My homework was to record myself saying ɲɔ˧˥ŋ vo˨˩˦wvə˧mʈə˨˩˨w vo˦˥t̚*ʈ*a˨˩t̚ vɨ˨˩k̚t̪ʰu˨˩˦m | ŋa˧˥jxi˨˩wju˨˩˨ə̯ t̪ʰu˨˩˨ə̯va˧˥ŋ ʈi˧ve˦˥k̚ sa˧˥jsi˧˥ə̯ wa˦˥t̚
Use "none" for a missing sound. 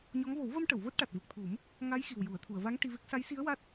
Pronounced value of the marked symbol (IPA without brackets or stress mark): ʈ